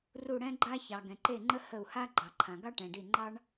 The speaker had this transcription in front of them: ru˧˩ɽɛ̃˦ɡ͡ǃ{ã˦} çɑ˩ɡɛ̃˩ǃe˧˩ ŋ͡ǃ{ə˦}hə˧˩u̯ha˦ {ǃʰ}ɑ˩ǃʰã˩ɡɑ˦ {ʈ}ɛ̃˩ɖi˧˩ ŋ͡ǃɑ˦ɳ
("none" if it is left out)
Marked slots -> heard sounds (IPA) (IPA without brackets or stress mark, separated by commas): a˦, ə˦, ɡ͡ǃ, ʈ